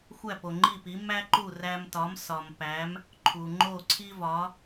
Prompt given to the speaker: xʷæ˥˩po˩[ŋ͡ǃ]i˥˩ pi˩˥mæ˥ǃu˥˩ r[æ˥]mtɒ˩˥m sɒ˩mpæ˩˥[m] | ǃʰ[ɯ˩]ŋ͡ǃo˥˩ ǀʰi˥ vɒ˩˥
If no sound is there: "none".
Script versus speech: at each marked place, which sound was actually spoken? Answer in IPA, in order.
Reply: ŋ͡ǃ, æ˧, m, u˩

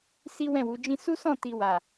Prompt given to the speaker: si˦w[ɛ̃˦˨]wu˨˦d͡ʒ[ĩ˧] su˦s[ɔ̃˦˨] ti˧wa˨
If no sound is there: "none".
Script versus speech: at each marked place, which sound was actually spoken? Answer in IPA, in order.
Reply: ɛ̃˦˨, ĩ˦, ɔ̃˦˨

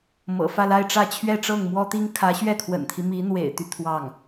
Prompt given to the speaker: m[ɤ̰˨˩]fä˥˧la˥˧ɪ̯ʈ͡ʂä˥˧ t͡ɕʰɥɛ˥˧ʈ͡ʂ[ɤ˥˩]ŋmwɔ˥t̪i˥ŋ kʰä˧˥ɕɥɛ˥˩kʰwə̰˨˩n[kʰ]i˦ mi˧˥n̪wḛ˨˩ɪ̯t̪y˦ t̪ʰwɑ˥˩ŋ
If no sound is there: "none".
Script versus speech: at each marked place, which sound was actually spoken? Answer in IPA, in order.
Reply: ɤ̰˨˩, ɤ˥˩, t̪ʰ

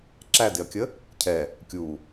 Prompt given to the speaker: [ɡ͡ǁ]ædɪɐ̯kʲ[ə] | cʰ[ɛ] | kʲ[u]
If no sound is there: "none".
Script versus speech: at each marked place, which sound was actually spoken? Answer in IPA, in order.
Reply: ǁ, ə, ɛ, u

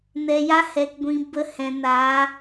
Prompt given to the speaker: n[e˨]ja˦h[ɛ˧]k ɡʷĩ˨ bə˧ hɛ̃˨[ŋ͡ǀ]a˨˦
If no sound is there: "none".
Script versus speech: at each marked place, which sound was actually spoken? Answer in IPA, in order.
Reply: ɛ˨, ɛ˨, n

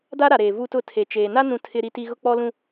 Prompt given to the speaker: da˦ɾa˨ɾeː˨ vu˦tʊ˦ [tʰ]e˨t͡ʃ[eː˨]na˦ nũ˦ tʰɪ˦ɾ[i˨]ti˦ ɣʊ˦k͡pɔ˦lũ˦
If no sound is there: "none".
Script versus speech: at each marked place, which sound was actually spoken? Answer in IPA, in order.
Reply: tʰ, eː˨, i˦

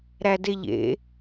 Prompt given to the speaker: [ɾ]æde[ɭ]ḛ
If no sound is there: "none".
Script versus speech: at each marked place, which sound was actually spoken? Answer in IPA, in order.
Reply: ɾ, ʎ

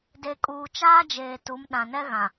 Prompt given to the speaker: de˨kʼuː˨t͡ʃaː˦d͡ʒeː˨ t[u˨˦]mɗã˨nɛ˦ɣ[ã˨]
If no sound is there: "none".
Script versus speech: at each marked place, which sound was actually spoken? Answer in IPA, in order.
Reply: u˨˦, ã˨

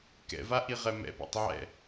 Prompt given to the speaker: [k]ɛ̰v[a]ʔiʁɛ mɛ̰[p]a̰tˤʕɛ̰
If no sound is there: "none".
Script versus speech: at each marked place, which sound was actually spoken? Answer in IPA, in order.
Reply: k, a, p

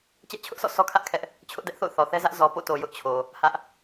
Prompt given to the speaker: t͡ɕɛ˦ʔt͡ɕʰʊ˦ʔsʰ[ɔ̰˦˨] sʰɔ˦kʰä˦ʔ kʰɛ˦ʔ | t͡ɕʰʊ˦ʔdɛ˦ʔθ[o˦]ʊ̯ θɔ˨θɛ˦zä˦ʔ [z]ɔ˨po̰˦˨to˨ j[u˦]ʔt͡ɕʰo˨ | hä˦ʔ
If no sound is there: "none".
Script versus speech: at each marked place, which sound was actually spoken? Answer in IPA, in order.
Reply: ɔ̰˦˨, o̰˦˨, z, ʊ˦

